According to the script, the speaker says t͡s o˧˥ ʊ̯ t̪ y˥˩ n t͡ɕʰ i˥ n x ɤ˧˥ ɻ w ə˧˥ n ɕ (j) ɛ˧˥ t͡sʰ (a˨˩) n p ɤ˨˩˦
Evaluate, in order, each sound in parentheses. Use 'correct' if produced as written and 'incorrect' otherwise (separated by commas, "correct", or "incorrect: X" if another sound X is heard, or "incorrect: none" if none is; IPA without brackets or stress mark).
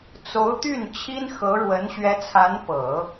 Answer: incorrect: ɥ, incorrect: a˧˥